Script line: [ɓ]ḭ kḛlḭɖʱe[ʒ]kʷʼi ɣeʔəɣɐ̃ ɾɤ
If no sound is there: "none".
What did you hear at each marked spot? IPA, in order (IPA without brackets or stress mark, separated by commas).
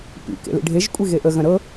p, ʒ